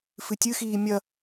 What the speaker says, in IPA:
f ɨ tʲ ɨ x iː mʲ ɐ

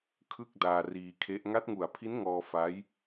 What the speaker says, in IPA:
kʰ ɯ˥˩ k̚ d aː˧ r iː˧ kʰ e˦˥ ʔ ŋ a˦˥ t̚ ŋ u˨˩ a̯ pʰ i˦˥ n ŋ ɔː˧ f a˦˥ j

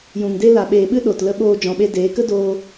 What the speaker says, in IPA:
j ũ˨ ŋ d e˦ l a˨ ɓ eː˨ ɓ ɨ˦ ɗ o˨ t l ə˧ ɓ oː˧ d͡ʒ ɔ̃˨ ɓ e˧ d eː˨˦ k ə˦ d oː˧

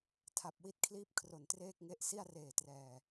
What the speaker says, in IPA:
tʰ a˨˩ p̚ w i˦˥ t̚ kʰ l iː˥˩ p̚ kʰ r o˨˩ n t r eː˥˩ k̚ ŋ e˦˥ ʔ s i˥˩ a̯ r eː˨˩ t r ɛː˨˩

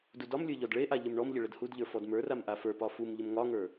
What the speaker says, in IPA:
d u d ɒ m lʲ ə˞ ʎ ɔ d ɭ e ʔ a ʎ ə m ɳ ɔ m ʎ ə ɭ ə d h u d ʎ ə˞ f ɔ d m ə˞ r a m ʔ a f ə˞ p ɒ f u m ʎ ə m ŋ ɒ ŋ ə˞

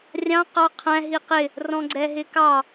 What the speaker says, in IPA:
rʲ ɑ̃ q ɑ qʰ æ̃ ɦ i q ɪ | r ɔ̃ ɡ͡ǀ ɛ ɦ ɪ k ɑ

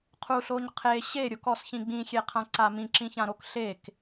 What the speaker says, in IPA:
qʰ u ɬ o ɲ qʰ e ɕ e ɾʲ o k ɔ s ç ĩ ɡ͡b ĩ xʲ e qʰ ã ǀ a m ĩ ǁ ĩ ç ã ɾ o k ɬ e k

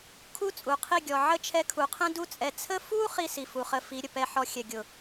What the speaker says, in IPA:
kʰ u˦ t͡sʼ u˨ qʰ i˦˨ ɡʲ ɔ˨ ʕ ə˦˨ t͡ʃʰ ɛ˧ kʰ u˨ qʰ ɛ̃˦ d u˧ t͡sʼ ɛ˨ t͡sʰ ə˦ f u˦ χ i˦ s i˨ f u˨ χ ə˧ f i˨˦ ɾʲ ə˨ p ɛ˧ ħ ɔ˧ xʲ ɛ˨ ɡʲ ʊ˨

